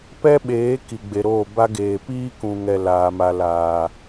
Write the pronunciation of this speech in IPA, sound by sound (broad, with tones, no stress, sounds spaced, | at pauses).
p ɛ˦ ɓ eː˨˦ k i˨ ɡ͡b e˨ ɾ oː˦˨ b a˦ ɡ eː˨ p iː˦ k ũ˨ ŋ ɛ˨ l aː˨ m a˨ l aː˨